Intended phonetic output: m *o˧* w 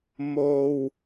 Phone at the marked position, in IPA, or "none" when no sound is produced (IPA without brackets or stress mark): o˧